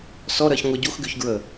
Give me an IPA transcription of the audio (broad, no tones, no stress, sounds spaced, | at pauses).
s ɔ ɾ ɜ ç ŋʷ ə ɟ u x ɡ y ç ɡ ɹ ə